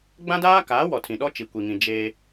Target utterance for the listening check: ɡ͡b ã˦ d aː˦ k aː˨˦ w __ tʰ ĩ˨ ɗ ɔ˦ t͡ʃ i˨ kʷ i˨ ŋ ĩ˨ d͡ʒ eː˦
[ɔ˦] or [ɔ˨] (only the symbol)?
ɔ˨